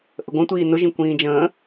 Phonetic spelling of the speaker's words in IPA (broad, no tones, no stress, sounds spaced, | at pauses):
ʔ ə ɡʷ ə̃ tʷ iː n ʊ ʒ ĩ kʷ ĩː d͡ʒ ə̃ː